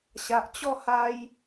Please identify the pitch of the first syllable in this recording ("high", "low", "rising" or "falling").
low